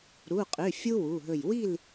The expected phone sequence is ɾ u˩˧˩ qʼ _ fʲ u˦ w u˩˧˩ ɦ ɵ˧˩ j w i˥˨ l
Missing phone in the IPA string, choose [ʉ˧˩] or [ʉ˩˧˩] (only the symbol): ʉ˩˧˩